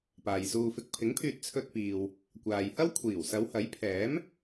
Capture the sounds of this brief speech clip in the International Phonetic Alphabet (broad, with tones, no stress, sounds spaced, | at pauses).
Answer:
p aː˨ j s uː˧ f ɪ˧ k̚ pʰ ɪ˨˥ ŋ pʰ yː˨ t̚ t͡sʰ ɵ˧ t̚ p iː˨ w | kʷ aː˨ j h ɐ˥ w kʷʰ iː˨˩ w s ɐ˨˧ w h ɐ˨˥ j pʰ ɛː˨˥ m